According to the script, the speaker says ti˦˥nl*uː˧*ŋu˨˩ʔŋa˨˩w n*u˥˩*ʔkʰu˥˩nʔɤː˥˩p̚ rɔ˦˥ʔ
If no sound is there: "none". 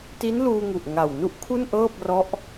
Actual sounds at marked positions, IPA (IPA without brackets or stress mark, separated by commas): uː˧, u˥˩